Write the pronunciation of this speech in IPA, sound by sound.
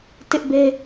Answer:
t ɪ˦ ʔ b e˦

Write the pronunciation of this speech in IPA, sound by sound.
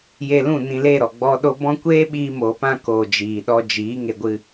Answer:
j e˧ l ũ˦˨ n ĩ˧ l e˦˨ ɾ ɔ˨ ɡ͡b ɔ˦ ɗ o˦ b ɔ̃˦ kʷ eː˦ ɓ iː˧ m o˨ p ã˧ k oː˨ d͡ʒ iː˨ ɗ ɔ˧ d͡ʒ iː˨˦ ŋ e˧ ɡʷ ɨ˧

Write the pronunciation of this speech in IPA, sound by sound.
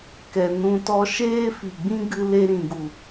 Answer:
k ɛ˧ n ũ˦ t ɔ˧ ʃ eː˦ f i˨ ɡ͡b ĩ˦ ɡ ɨ˧ l e˧ ɾ ĩ˨ ɡ u˨

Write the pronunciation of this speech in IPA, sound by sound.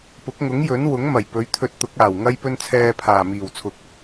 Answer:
p ʊ˨˥ k̚ ŋ ʊ˨˥ ŋ j ɵ˨˥ n w ʊ˨˥ ŋ m ɐ˨˩ j p ɵ˨˥ ɥ t̪ʰ ɵ˧ t̚ t̪ ʊ˨˥ k̚ aː˨˩ w ŋ ɐ˥ j p ɵ˥ n t͡sʰ ɛː˧ pʰ aː˨˩ m iː˨˩ w t͡sʰ ʊ˨ k̚

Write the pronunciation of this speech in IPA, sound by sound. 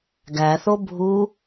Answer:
ɡ æ θ o bʱ u

